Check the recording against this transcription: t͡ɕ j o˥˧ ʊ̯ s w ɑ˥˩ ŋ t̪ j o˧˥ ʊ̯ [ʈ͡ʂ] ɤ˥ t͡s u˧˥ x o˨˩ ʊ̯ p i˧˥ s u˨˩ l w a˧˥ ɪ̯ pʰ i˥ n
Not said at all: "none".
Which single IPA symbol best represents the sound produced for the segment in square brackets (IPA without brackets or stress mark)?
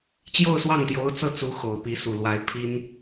t͡s